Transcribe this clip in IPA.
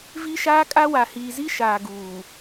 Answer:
v i˦ ʃ aː˦ kʼ a˦ w a˨ h iː˨ z i˦ ʃ aː˨ ɡ uː˨

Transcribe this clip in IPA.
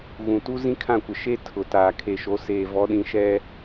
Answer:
ɣ ũ˨ t u˦ z ĩ˦ kʰ ã˦˨ kʷ ɪ˨ ʃ e˦ tʰ ʊ˨ t aː˨ kʰ e˨ ʃ o˨˦ s eː˨ v ɔ˨˦ ɗ ĩ˨ ʃ ɛ˦

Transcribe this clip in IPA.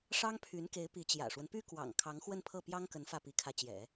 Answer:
ʂ ɑ˥ ŋ pʰ y˧˥ n k e˧˥ ɪ̯ p i˧˥ t͡ɕ j ä̰˨˩ ʂ w ə˦ n p y˥ k w ɑ̰˨˩ ŋ kʰ ɑ˧˥ ŋ x w ə˥˧ n pʰ ɤ˥˩ p j ɑ˥ ŋ k ə˧˥ n f ä˥˩ p i˧˥ kʰ ä˧˥ t͡ɕ j ɛ̰˨˩˦

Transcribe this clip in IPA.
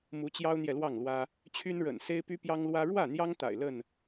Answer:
m u˨˦ t͡ɕ j ɑ˦ ʊ̯ n̪ j ɛ˨ l w ɑ˥˨ ŋ l w ä˦ | t͡ɕʰ y˦ n ɻ ə̰˨˩ n s e˦ ɪ̯ p y˦ p j ɑ˦ ŋ l w ä˦ ɻ w ä˥˨ n̪ j ɑ˦ ŋ t̪ a̰˨˩ ɪ̯ l ə˥˨ n

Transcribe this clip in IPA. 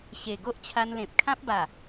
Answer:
ɕ e˨˩ ɡ o˦ ʔ t͡ɕʰ a˧ n l ẽ˨ p̚ kʰ ã˦ p̚ b a˨˩

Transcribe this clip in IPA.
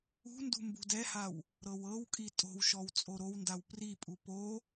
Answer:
ṳ n d ṳ m b ṳ d ɛ h a w | ɾ ɤ w ɤ w kʼ i tʼ o̤ w ʃ ɔ w t͡sʼ o ɾ o w n d a w p r i pʼ u p o

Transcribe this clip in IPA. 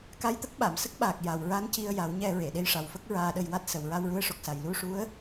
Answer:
k a˧ j t̪ ə˦˥ k̚ ɓ a˨˩˨ m s ə˦˥ k̚ ɓ aː˨˩ k̚ j a˨˩ w ɹ a˧˥ n c i˧ ə̯ j a˨˩˦ w ɲ ɛ˧ ɹ e˨˩˨ ɗ e˧˥ j ʂ a˨˩ w f ə˦˥ k̚ ɹ aː˧ ɗ ə˧ j w a˦˥ t̚ s ə˨˩ w ɹ a˧ w ɹ u˧˥ ə̯ ʂ o˨˩ k̚ s a˨˩ j l u˧ ʂ u˧˥ ə̯

